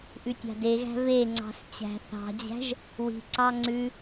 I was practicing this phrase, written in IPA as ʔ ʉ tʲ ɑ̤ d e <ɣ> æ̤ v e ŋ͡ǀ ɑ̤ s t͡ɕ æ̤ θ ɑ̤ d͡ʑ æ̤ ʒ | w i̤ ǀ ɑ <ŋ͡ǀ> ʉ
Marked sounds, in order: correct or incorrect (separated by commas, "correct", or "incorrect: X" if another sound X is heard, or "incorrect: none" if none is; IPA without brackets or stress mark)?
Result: correct, correct